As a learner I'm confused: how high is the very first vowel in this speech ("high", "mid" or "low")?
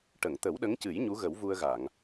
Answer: mid